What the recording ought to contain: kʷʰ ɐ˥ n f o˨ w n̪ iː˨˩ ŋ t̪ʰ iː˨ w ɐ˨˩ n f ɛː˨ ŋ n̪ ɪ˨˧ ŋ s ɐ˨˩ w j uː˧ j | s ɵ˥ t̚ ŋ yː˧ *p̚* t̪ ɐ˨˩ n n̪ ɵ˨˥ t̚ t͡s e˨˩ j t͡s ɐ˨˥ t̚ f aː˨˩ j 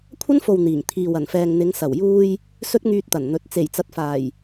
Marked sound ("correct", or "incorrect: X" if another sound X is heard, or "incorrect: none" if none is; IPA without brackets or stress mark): incorrect: t̚